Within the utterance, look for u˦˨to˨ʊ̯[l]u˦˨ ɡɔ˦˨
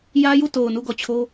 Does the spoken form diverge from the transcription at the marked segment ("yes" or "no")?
yes